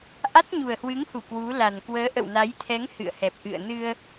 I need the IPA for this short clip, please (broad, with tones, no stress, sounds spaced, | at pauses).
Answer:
ʔ a˦˥ t̚ ɲ u˨˩ ə̯ h w ɨ˨˦ ŋ h u˧˩ k w u˨˦ l a˨˩ n k w əː˨˦ ʔ ə̰˧˨ w n a˨˦ j t̪ʰ ɛ˨˦ ŋ h ɨ̰˧˨ ə̯ h ɛ˨˩ p̚ ʔ ɨ̰˧˨ ə̯ n ɨ˧ ə̯